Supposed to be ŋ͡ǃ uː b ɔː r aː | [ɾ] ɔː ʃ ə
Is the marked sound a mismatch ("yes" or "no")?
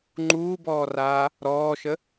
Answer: no